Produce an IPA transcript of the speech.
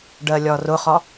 ɖ ɜ lʲ ɒ r ʊ χ ɒ

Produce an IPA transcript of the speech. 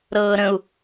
ɾ ɤː ɾ ə̃ u̯

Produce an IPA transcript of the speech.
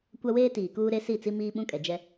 kʷ a˦ w eː˦ t iː˨ k uː˦ ɾ e˦ s i˦˨ t͡s i˦ m iː˦ ɓ ũ˦ kʼ ɛ˨ d͡ʒ ɛ˦

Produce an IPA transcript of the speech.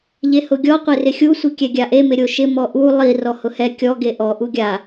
ʎ e h ʊ ɡʲ ɔ qʷ e r ɪ xʲ u sʷ i kʲ ɛ ɡʲ a ʔ e m ɪ ɾʲ o ʃ ɪ m ɔ ʔ u lˠ i r ɔ h ʊ h ɛ kʲ ɔ ɡ e ʔ ɔ ʔ u ɡʲ a

